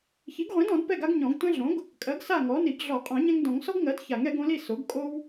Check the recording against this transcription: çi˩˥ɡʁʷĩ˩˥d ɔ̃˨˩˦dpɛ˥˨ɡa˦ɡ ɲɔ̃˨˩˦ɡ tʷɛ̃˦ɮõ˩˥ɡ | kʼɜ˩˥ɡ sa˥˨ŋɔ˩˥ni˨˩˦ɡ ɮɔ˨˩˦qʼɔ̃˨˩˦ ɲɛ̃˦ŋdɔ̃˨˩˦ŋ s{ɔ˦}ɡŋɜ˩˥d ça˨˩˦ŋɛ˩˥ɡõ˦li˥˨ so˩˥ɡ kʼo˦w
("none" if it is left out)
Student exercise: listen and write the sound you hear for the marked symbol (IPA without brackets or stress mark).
ɔ˦